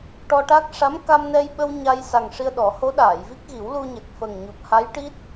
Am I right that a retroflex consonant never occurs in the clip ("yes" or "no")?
no